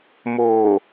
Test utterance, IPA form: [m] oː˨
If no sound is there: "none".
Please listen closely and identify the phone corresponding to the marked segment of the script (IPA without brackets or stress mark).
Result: m